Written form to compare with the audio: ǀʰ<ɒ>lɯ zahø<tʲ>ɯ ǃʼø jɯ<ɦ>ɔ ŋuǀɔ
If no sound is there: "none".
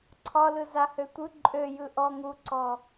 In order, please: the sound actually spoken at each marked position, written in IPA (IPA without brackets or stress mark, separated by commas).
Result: ɒ, tʷ, ʔ